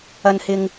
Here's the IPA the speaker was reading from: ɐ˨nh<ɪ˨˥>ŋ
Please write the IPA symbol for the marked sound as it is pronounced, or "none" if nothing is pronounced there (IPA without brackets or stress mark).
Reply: ɪ˨